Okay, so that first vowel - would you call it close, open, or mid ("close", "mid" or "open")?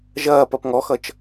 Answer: open